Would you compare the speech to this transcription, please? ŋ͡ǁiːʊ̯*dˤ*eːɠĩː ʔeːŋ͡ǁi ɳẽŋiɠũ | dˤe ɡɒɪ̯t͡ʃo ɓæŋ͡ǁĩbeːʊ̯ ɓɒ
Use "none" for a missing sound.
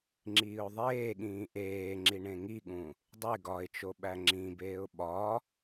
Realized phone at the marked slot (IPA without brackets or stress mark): ðˤ